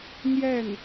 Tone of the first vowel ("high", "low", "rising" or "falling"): falling